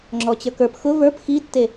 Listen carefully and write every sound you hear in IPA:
ŋ͡ǁ ɔ t͡ɕ ə˞ k ə˞ p x ʊ v ə˞ p x i tː e

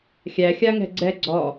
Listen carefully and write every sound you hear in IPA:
xʲ æ xʲ a ŋ ɛ̤ ɡ͡ǀ ɛ ɡ͡ǀ ɔ

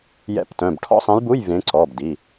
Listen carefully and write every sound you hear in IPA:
j ɛ̰˧˥˧ p t œ̃˩˧˩ b ʈʰ ɔ̰˥˧ sˤ ɛ̃˧˥ j b u˧˥˧ j v ẽ˧˥ ǀ ɔ˩˧˩ b d i˩˧˩

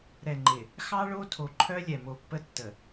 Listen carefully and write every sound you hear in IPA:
ɾ ɛ˨ ŋ͡ǃ ɪ˨ | x ɑ˦ ɭ o˦ tʰ o˨ ǃʰ œ˦ lʲ ɛ˨ m o˨ pː ə˦ tː ə˨

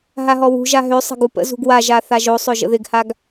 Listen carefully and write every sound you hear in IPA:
ɦ a ɦ ɔ w ṳ ʒ a ɦ ø sˤ ə̤ ɡ u p ə̰ z ṳ ɡ w a ʒ a θ a ʒ o sˤ ɵ ʒ ə̰ ð ɪ ɡ h a ɡ

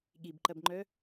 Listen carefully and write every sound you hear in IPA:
ɠ i b ǃ ɐ b ŋ͡ǃ œ

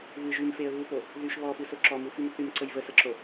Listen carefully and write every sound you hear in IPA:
β ɨ ʒ y m f e ə̯ β u p o | ð y ʃ β ɔ f ɨ s o ǁ ɔ m u f y m θ y m ǀ ə j v ə s ə ǁ o

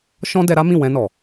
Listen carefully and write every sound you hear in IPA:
ʃ ɔ̃˦ d ɛ˧ ɾ a˦ m ĩ˦˨ w ɛ̃˧ n ɔ˨

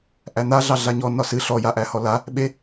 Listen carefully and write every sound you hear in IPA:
ʔ æ n̪ a ɮ ɑ ɮ a ɲ ɔ n ɒ s ɨ ɬ ɔ j a ʔ æ h ɔ l a | ɓ e

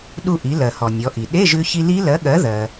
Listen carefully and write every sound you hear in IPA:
ɗ u˧ ʔ i˩˧ l ɜ˩ h ɔ˩ nʲ ɔ˩˧ ʔ i˩ ɗ e˧˥˧ ʒ ʉ˧ ç i˧ l i˦˥ l ɜ˨˥ ɠ ɜ˨˥ ð ɜ˩

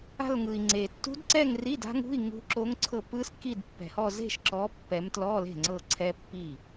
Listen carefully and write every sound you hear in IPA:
a̤˥˧ l ŋ ɯ˨ i̯ ŋ͡ǀ e˨ tː ṳ˦˥ d ǀ ɛ˥˧ ŋ r i˧˥˧ d a̤˦˥ ŋ ṳ˧˥˧ i̯ ŋ ṳ˦˥ ǁ o˦˥ ŋ ǀʰ ɤ˥˧ p ɯ˦˥ s k i˥˧ d pː ɛ̤˨ h ɔ˥˧ z e̤˥˧ ʃ ǁ ɔ˨˦ pː ɛ˨˦ m t l ɔ˧˥˧ l e̤˥˩ ŋ͡ǀ ɤ˥˧ ǀʰ ɛ˦˥ pː i˥˩

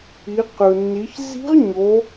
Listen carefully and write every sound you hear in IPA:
i˩˧ q ɯ˩ nː i˩˧ ç z i̤˧˥ ʁ ɲ o˩˧

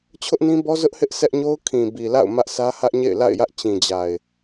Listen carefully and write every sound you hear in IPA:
t͡ɕʰ ʊ˦ ʔ n ĩ˦ b ɔ˦ z ʊ˦ ʔ h ɪ˦ ʔ s ɛ˦ ʔ ɲ o˦ ʊ̯ kʰ ĩ˨ b i˨ l a̰˦˨ ʊ̯ m ä˦ ʔ sʰ ä˦ h ä˦ ʔ ɲ ḛ˦˨ ɪ̯ l a̰˦˨ ɪ̯ j ä˦ ʔ t͡ɕ ĩ˨ d͡ʑ a˨ ɪ̯

